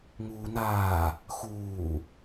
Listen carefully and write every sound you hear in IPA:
ŋ uː n aː | x uː

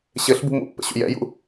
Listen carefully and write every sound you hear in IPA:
ɕ ɘ ɬ b ṳ m ṵ pː ə̰ ɕ ṵ j ɛ̰ j ṵ

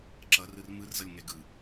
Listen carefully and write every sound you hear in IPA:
ǁ ʌ r ɯ r m ɯ r z ʌ lʲ ŋ ɛ ɡ ɯ

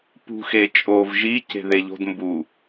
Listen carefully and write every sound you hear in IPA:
p ṳ x e t͡ʃʼ o v ʒ i c e̤ ð e ʎ o̤ d m b u

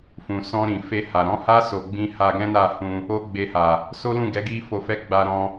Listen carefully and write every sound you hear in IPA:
f ũ˨ s ɔ̃˧ ɾ ĩ˨ f e˧ h a˨ ɾ ɔ̃˨˦ h a˦ s o˧ ɡ͡b ĩ˦ h a˧ ɡ ɛ̃˦ n a˦˨ h ũ˧ | o˦ ɡ͡b e˧ h a˨ | s o˦ l ũ˦˨ ɡ ɛ˨˦ ɡ i˦ f o˧ f ɛ˦ ɡ͡b a˧ ɾ ɔ̃˧

